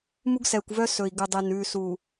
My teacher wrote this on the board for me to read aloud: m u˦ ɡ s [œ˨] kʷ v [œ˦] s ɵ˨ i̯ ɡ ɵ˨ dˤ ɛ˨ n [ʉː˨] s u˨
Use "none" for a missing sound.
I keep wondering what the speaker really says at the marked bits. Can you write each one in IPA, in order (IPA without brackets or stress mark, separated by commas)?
ɛ˨, œ˦, ʉː˨